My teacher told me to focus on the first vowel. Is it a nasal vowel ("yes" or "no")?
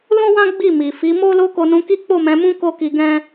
yes